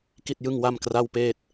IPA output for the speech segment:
k i˥˩ t̚ j ɯ˥˩ ŋ w a˥˩ m k r a˥˩ w p eː˥˩ t̚

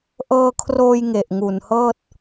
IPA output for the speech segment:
ʔ ɤː˧ kʰ r oː˧ j ŋ e˨˩ ʔ ŋ u˨˩ n h ɤː˥˩ t̚

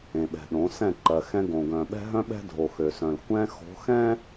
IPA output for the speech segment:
ẽ˨ ɓ ɛ̤˨ ɗ õ˨˦ s ɛ̃˦˨ ǃ ɜ˨ x ɛ̃˦ ɡ õ˨ ɡ œ̃˨ ɓ ɛ̤˦ ɦ œ̃˦ ɓ ɛ̤˦ dʱ o˨ x ø˨ s œ̃˨ l kʷ ɛ̃˦ x o̤˨˦ x ɛ̃˦

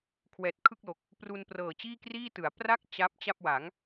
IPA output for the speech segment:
kʰ w ɛː˨˩ t̚ kʰ ɯ˥˩ k̚ l o˨˩ k̚ | p r u˧ n p r ɤː˨˩ t͡ɕ iː˥˩ k r iː˥˩ t ɯ˩˦ a̯ p r a˥˩ k̚ t͡ɕ a˦˥ p̚ t͡ɕ a˥˩ p̚ w a˩˦ ŋ

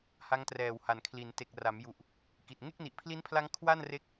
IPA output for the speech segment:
h a˦˥ ŋ t r ɛː˨˩ w h a˩˦ n kʰ l i˩˦ n t e˨˩ k̚ r a˩˦ m j u˨˩ ʔ | k i˨˩ t̚ ŋ e˥˩ k̚ n i˨˩ ʔ pʰ l i˦˥ n pʰ l a˦˥ ŋ kʰ w a˥˩ n r e˦˥ k̚

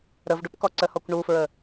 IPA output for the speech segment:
ɾ ə v ɖ u p k ɔ ǀ ə h ɔ kʷ ɳ u f ɹ ə

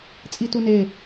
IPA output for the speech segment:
t͡sʼ i t u n e

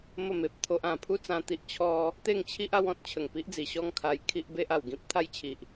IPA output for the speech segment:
m ə˥˧ m e˨ p̚ t̪ʰ o˦ ʔ ã˨˩ pʰ u˥˧ t͡s ã˧ t̪ i˦ ʔ t͡ɕʰ ɔ˦ | t̪ e˥˧ ŋ t͡ɕʰ i˦ ʔ a˦ w ɔ̃˦ t̚ t͡ɕʰ ə˨˩ ŋ p i˦ ʔ d͡z i˨˩ ɕ ɔ˥˧ ŋ kʰ a˧ j kʰ i˦ ʔ b e˦ ʔ a˨˩ w ɡ ĩ˦ p̚ t̪ʰ a˦ j t͡ɕʰ i˨ ʔ

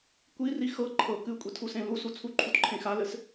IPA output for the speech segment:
kʷ i r i x ɤ ǃʰ ɤ k ɨ kʷʼ i tʰ u s ẽ l u s u t͡sʰ u ǃʰ u t ǃʰ ẽ x a l ɘ s

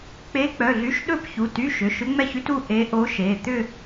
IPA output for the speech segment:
k͡p e˧˥ k͡p œ˩˧˩ ɮ y˧˥ ʃ ɗ ɵ˥˧ p ç u˩˧˩ t y˧˥˧ ʃ ʏ˩˧˩ ʃ ʏ˧˥ ŋ͡m ɛ˥˧ ç y˧˥ t u˥˧ ʔ e˧˥ ʔ o˧˥ ʃ e˩˧˩ t̪ ʏ˥˧

